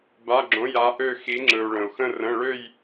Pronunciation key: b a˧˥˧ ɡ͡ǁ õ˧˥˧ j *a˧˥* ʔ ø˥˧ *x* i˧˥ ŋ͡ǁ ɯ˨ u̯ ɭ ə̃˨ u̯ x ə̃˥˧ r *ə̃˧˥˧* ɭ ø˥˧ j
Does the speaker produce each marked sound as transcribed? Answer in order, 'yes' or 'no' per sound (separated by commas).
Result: yes, yes, yes